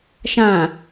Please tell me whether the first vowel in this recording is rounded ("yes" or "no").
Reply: no